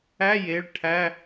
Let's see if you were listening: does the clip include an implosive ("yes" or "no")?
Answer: no